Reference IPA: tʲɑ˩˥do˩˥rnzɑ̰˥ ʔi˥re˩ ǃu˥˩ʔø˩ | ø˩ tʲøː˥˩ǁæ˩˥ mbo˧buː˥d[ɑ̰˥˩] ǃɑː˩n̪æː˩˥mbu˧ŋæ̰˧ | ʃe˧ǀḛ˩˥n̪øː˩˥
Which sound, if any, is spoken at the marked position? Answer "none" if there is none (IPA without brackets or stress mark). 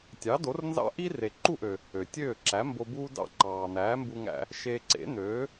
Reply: ɑ̰˥˩